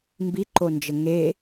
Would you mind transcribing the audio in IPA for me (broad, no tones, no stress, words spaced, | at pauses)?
mbiǃond͡ʒə ŋe